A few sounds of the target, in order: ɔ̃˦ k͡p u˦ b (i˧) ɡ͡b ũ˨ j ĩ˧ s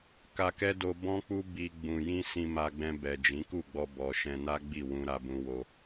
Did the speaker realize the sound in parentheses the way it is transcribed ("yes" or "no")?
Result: yes